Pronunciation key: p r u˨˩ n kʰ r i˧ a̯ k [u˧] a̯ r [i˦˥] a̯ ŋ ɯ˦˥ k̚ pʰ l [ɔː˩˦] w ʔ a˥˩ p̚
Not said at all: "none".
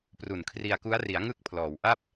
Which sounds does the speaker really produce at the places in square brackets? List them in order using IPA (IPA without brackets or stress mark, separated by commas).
u˦˥, i˩˦, ɔː˩˦